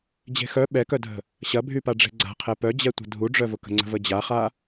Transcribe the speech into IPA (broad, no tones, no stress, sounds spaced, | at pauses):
d͡ʑ e̤ x œ ɓ ɛ k œ dʱ ə̤ | ɕ ɐ bʱ y p a ɖ͡ʐ e̤ ɡ͡ǀ a̤ qʰ ɛ p œ d͡ʑ ɛ tʷ ə̤ dʱ u ɖ͡ʐ œ v ʊ k ə̤ ŋ͡ǀ ə̤ v ə d͡ʑ a χ a